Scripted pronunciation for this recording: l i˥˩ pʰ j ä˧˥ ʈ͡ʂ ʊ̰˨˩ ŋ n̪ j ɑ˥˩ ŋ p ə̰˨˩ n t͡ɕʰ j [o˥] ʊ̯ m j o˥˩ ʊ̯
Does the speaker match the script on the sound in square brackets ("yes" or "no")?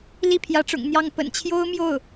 yes